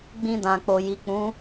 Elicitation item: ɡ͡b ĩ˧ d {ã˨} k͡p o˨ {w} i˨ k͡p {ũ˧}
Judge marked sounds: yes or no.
yes, no, no

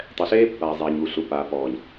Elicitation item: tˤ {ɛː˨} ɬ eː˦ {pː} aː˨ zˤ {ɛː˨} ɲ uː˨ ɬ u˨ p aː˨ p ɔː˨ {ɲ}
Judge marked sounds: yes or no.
no, yes, yes, yes

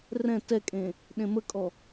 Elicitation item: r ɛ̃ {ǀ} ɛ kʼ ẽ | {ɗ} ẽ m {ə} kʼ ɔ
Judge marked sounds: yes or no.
no, yes, yes

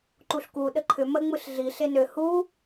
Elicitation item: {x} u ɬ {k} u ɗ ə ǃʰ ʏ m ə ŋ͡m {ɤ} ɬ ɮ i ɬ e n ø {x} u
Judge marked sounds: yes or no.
no, yes, no, no

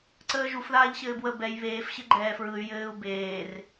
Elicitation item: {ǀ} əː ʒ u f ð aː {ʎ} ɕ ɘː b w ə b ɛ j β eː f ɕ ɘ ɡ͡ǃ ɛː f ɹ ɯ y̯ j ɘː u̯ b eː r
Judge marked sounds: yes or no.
yes, yes

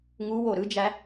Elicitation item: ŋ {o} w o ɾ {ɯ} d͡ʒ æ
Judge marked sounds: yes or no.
no, yes

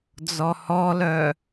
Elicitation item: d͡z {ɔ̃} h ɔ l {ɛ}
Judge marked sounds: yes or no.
no, no

